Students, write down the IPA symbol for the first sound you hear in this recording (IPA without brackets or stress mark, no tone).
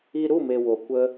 i